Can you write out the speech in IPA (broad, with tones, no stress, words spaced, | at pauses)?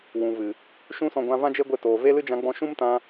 wũ˨vɨ˨ | ʃũ˦sɔ̃˧ɡʷã˧ vã˦d͡ʒe˦ɡʷe˧ toː˨ve˦lɨ˦ d͡ʒã˧ɡ͡bɔ̃˧ʃũ˦mtã˧